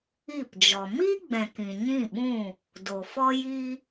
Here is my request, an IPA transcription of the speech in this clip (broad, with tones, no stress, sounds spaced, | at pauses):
i˦˨ p d͡ʒ ɔ˨ m i˦ ɡ͡b ɛ̃˨ k ĩ˨ ɲ ĩ˦˨ ɓ ũ˦˨ | d o˨ f ɔ˦ j i˦